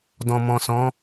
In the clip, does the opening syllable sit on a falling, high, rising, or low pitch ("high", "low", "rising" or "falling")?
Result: low